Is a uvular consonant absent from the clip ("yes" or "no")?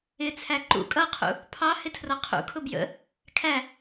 no